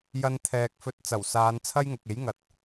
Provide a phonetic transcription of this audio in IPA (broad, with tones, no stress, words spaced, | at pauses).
jɐ˥nt̪ʰɛː˧k̚ fɵ˧t̚t͡sɐ˨˩wsaː˨˧n t͡sʰɐ˥jŋʊ˨k̚e˨˥jŋɐ˨t̚